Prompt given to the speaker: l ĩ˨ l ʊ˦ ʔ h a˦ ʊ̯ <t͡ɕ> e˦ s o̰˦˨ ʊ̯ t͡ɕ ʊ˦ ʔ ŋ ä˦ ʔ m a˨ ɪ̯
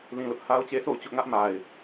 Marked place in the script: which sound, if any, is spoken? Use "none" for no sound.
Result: t͡ɕ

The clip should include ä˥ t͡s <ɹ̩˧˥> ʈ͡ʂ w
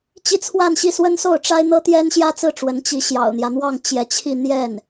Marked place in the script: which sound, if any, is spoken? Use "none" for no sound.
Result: ɹ̩˥˩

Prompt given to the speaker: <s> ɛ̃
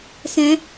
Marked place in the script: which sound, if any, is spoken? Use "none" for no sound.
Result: s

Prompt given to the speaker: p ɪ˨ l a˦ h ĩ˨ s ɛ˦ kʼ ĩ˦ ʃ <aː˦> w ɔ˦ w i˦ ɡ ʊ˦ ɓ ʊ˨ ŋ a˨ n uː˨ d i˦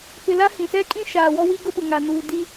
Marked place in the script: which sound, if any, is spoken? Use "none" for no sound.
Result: aː˨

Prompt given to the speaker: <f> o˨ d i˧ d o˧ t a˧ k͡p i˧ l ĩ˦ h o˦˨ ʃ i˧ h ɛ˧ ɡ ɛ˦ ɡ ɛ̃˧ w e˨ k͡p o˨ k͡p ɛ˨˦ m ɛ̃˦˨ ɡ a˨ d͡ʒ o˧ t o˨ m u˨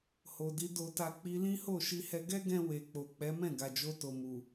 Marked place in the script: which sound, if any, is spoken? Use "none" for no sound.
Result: h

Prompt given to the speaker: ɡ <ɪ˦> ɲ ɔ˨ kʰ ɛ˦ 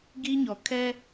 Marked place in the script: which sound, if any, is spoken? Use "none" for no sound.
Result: i˦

